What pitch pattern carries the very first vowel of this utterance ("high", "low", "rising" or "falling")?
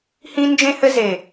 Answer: high